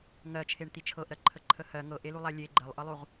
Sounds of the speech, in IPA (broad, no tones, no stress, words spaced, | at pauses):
ŋɜt͡ʃʰeɳt̪i t͡ʃʰɤʔɾɜǃʰəǃʰə hɜ ŋɤʔelulˠa lʲe ɡ͡ǃɜlˠʔɤlˠuʁ